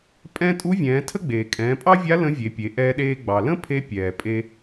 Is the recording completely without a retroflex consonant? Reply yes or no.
yes